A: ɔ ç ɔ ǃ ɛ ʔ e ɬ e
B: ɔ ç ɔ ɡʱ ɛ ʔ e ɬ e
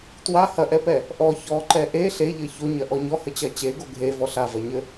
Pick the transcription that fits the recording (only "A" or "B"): A